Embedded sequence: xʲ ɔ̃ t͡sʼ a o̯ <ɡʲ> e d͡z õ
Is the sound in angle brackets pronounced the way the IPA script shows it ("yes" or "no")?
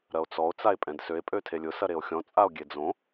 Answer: yes